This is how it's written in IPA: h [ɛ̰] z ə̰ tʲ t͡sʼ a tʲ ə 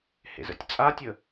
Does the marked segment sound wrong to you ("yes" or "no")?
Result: yes